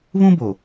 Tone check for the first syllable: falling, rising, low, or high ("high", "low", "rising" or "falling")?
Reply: high